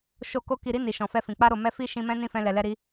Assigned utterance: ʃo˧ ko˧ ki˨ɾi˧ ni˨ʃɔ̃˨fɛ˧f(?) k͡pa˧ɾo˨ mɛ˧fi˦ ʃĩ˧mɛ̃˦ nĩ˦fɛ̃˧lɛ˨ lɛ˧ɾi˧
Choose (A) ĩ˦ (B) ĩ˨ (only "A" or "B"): B